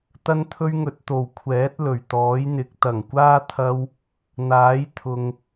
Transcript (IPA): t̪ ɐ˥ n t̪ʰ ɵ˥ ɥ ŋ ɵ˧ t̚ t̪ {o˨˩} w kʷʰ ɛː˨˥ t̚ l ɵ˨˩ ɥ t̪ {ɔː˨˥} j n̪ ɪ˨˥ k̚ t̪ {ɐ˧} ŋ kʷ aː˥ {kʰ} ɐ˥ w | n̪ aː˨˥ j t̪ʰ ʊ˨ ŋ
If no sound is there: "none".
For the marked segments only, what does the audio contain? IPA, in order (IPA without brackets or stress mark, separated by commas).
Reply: o˨˩, ɔː˨˥, ɐ˨˩, t̪ʰ